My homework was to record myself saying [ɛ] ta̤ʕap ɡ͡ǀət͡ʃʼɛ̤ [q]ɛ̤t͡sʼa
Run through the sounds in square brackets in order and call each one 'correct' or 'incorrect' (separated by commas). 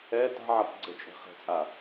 correct, incorrect